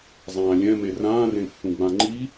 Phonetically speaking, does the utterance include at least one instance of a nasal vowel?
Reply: yes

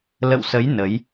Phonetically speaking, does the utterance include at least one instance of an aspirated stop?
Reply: no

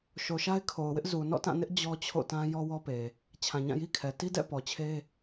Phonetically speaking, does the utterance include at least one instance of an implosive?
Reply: no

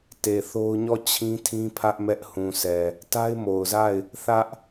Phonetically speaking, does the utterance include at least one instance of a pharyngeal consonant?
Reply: no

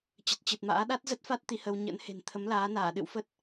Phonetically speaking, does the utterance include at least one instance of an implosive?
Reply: yes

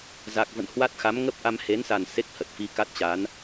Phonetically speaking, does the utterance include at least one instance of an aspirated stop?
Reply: no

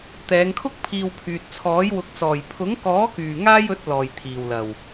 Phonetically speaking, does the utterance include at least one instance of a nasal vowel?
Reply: no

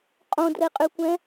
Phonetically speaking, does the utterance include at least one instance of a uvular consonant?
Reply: yes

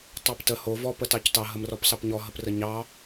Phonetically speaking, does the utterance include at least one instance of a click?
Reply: no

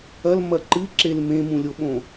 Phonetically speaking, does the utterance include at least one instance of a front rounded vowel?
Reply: no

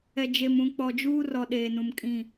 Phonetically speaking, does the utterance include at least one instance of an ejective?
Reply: yes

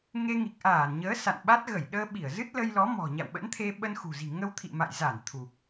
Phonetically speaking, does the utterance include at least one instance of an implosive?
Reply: yes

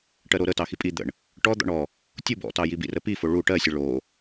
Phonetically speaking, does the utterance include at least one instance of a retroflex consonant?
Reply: yes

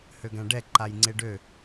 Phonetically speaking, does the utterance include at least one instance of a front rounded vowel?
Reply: yes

